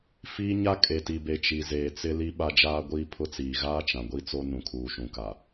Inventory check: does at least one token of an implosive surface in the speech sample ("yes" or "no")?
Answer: yes